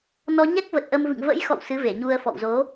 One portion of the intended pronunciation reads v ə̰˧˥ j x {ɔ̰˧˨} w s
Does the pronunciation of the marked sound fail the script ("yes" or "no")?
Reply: no